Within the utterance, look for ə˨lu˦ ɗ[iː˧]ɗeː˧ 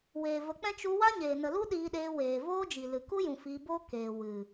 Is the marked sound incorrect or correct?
correct